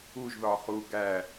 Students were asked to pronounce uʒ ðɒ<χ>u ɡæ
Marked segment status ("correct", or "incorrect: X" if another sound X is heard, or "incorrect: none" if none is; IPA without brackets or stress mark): correct